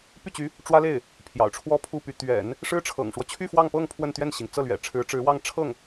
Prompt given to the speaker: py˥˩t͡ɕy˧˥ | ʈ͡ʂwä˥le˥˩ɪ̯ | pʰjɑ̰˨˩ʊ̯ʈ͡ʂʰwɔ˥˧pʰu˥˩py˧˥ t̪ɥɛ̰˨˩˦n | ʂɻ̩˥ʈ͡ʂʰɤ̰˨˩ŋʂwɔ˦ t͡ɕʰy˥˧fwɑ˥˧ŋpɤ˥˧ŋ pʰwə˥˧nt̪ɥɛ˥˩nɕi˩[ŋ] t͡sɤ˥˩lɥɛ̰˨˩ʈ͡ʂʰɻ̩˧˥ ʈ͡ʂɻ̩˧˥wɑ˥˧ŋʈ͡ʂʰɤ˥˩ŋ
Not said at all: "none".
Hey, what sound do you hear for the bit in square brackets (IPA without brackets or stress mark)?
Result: ŋ